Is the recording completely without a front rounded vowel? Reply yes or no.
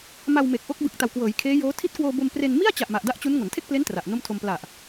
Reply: yes